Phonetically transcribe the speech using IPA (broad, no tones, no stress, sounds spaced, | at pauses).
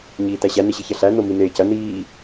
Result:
ɲ iː t æ ɕ æ n e ɕ i ç ɐ ɬ æ n o m i n eː c ɐ n iː